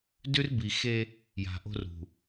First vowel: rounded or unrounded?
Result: rounded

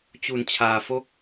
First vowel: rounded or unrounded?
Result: rounded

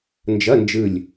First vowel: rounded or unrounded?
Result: unrounded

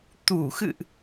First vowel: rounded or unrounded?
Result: rounded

